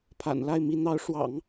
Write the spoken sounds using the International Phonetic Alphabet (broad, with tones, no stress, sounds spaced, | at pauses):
pʰ a̰˨˩ n l a˥˩ ɪ̯ m i˧˥ n̪ ɑ˧˥ ʊ̯ ʂ w ɑ̰˨˩˦ ŋ